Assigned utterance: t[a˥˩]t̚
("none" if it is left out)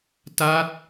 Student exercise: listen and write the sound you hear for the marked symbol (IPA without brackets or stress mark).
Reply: a˦˥